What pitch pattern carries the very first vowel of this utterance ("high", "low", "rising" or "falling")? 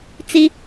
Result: high